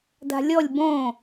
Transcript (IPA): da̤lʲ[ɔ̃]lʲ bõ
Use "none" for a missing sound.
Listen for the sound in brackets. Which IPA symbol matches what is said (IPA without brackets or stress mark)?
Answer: ɔ